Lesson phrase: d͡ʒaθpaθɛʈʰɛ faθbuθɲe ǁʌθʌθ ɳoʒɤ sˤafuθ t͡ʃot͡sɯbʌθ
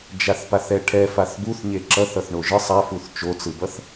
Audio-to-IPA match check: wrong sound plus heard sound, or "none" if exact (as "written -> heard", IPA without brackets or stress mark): ɤ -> ɯ